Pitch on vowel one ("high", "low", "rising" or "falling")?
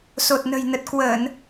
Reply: low